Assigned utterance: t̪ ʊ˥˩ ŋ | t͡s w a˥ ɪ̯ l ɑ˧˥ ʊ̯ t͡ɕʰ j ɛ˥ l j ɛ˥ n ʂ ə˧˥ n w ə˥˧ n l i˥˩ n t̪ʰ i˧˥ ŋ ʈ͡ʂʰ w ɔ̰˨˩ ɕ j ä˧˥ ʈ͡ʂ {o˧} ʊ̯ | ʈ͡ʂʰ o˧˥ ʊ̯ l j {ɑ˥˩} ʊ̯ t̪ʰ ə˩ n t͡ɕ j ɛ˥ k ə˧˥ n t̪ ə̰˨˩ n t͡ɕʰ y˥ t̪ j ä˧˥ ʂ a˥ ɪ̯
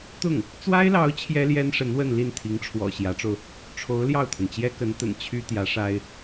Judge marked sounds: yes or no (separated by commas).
yes, yes